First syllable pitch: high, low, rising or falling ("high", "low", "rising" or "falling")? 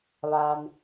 low